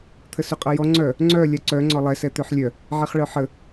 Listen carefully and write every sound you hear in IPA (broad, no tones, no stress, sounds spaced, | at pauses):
t̪ʰ ə s y qʼ ʌ j ɔ ŋ͡ǀ œ | ŋ͡ǀ œ lʲ a ǀ œ ŋ͡ǀ ɔ lˠ ɛ s ɛ t̪ ø ħ lʲ œ | ʕ ɛ χ ɭ œ ħ ə